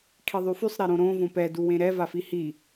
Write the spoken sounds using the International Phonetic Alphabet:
kʰiðˤyfysˤ ɾeɾõɾõ võpɛ duwẽɾɛ vafihi

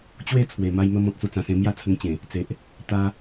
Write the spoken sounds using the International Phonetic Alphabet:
t͡ɕwe˥˧ t͡sʰwe˨˩ma˦jmə˦m ɔ̃˨t̚t͡su˧t͡sã˨˩sẽ˧ mja˥˧t͡sʰə˧ŋt͡ɕẽ˨˩ | t͡se˨ʔ | t̪a˧

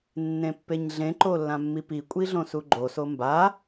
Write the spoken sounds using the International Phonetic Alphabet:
nːẽpːeɲɮẽ ǃolːãmːipi kʷʼiɮõsuɡ͡ǃo somba

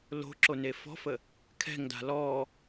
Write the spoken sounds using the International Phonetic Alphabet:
lo̤ǁone fɔ̤fə | kʰɛ̤ŋda̤ lɔ

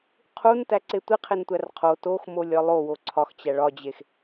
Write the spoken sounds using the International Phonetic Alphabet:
qʰuntæǀe tʷiqʰentʷær qʰo toxmolʲɒ lˠowo ǀʰɒxt͡ɕæ ɭɒd͡ʑex

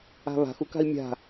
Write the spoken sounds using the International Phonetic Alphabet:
a̤βa̤x uka̤i̯mʲa̤

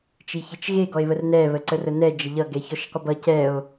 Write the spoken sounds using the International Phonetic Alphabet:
t͡ʃiçet͡ʃɣe ɡɔe̯βərnɛ βəǀərənɛ d͡ʒəʎʌ ɡɛçɔʃqʷəbʌ cɛo̯

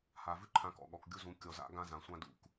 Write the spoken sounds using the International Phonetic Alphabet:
ha˨vʉ˦ǃʰã˨˦ kɔ̰˨ ɠɔ˨kɡʲu˦zũ˨˦ kʲɔ˨za̰˦ ɡã˦zã˨sʷã˦dṵ˦k

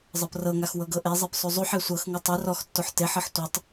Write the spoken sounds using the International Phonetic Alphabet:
zˤɤprɤŋax wɤɡɤʔezˤep sˤuzˤuħe sʷɤxŋɯ tˤɯ rɔxtːoħ teħɤħ tʷetˤ

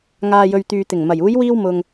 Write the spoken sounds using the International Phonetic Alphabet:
ŋaː˨jɵ˨ɥt̪yː˨t̪ɪ˨˩ŋ mɐ˨˩j uː˨˧jwiː˧wmʊ˨ŋ

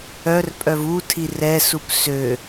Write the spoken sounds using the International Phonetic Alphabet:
œr pʼœvutʰi rɛsup sø

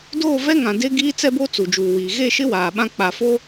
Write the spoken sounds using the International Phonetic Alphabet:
doː˦˨vɛ˦ŋã˨ de˦ ɡiː˦t͡sɛ˦bo˦ t͡su˨d͡ʒuː˨wiː˨ ɣe˦˨ʃɪ˦ waː˨ɓã˦k͡pa˨fo˦

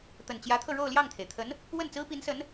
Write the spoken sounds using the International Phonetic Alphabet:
t̪ə˨˩nt͡ɕjä˧˥t̪ʰɤ˧ ɻo˥˧ʊ̯ljɑ˥˩ŋt̪ʰe˩ɪ̯t̪ʰə˧˥n | wə˥˩nt͡sɹ̩˥pi˧˥nsə˧˥n

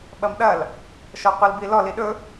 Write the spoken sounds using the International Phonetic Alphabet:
ɓɐmɗɐl | ʃɔqʷilbilɔ liɗɵ

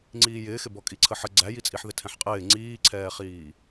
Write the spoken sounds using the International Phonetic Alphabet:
ŋ͡ǀiːjɪːxɪbɔ kʼiǀʰəħə ɡ͡ǀæjit͡sʼiħðɪ tʰɛ̃ħqʼɪː ŋ͡ǀiːǀʰɛːχiː

